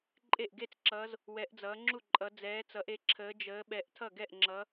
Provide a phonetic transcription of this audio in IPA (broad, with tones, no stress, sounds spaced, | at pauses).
ǃʼ e˥˩ ʔ ɡ e˥˩ t͡s ǁ ʌː˨˦ z | w ɛ˨˦ ʔ d͡z ʌː˨˦ ŋ͡ǁ u˥˩ ǃʼ ʌ˨˦ d͡z ɛː˨˦ t͡s ʌ˨˦ ʔ e˨˦ ǁʰ əː˨˦ d͡ʒ əː˨˦ ɓ ɛ˨˦ ʔ tʰ ʌ˥˩ ɡ ɛ˥˩ ʔ ŋ͡ǁ ʌ˨˦